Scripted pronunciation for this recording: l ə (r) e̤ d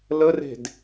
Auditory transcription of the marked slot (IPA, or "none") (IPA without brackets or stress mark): r